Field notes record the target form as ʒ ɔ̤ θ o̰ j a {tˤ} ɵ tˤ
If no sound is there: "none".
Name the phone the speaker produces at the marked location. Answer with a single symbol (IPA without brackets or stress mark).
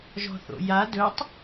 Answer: d